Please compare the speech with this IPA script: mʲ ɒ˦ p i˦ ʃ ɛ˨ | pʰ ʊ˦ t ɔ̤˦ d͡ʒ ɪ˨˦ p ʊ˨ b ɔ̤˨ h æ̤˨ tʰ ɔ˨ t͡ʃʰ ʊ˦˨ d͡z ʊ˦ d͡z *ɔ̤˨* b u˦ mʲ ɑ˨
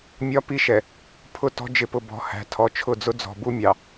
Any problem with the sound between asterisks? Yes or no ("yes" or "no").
no